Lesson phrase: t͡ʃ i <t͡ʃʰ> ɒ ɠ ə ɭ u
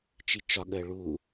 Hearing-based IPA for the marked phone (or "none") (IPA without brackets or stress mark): t͡ʃ